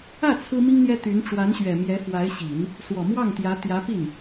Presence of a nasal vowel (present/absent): absent